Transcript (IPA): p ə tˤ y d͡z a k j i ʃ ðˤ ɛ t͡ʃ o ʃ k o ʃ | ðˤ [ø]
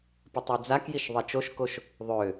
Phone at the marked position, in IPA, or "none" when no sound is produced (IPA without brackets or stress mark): ø